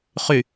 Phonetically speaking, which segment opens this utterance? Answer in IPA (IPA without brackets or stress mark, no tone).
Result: χ